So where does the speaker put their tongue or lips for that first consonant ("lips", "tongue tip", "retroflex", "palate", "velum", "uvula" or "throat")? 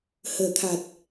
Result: throat